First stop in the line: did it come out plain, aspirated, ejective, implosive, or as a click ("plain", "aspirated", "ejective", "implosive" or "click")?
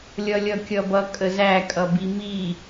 plain